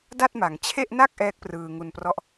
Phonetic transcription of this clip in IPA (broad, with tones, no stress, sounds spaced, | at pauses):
d a˥˩ t̚ m a˩˦ ŋ t͡ɕʰ e˥˩ ʔ n a˥˩ k̚ ʔ ɛː˦˥ k̚ p r ɯː˧ ŋ u˧ n p r ɔ˦˥ ʔ